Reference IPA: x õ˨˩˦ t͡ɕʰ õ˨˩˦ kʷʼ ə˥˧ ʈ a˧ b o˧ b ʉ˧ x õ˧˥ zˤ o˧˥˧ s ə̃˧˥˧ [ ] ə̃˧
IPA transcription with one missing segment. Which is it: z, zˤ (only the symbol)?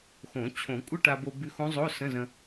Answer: z